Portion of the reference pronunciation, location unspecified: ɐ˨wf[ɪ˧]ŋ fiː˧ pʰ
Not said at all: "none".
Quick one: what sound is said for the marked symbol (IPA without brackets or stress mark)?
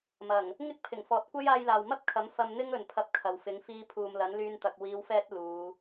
ɪ˨˥